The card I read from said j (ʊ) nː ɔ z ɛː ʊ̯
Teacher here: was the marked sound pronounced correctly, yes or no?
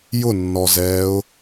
yes